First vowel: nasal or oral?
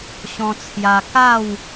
nasal